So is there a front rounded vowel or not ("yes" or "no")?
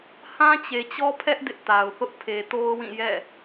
no